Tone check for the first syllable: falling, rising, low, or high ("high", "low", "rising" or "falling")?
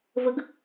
rising